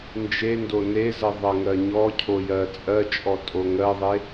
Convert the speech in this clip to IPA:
nd͡ʒendo nezɜ ðˤɜŋɜɲɔcʰo jɜt͡sʼɜt͡ʃʼɔ tʼoŋɜðˤe

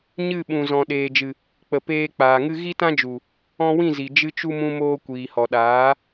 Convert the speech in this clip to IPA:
ɲɨ˦˨ ɓũ˨zɔ̃˨ ɗeː˨d͡ʒɨ˨ | k͡pə˨peː˧k͡paː˨ŋɨ˦ ɣi˦tã˦d͡ʒu˨ | ɔ̃˧wĩ˦˨zi˨ d͡ʒɨ˧t͡ʃu˧ mũ˧moː˧kʷiː˨hɔ˨ ɗaː˨˦

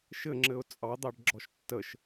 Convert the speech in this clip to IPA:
ʃɘŋ͡ǁɘʊ̯ t͡sʼɑd̪ɑɖɡ͡ǁɔʃ tːəʃ

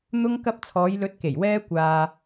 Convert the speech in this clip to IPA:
n̪ʊ˥ŋ kɐ˧p̚t͡sʰɔː˨˧jlɵ˨˥t̚ke˨˩j wɛː˥kʷaː˧

